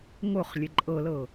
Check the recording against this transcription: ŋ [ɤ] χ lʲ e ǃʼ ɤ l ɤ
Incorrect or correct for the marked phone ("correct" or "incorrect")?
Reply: incorrect